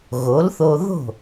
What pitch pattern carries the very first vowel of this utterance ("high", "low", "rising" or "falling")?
rising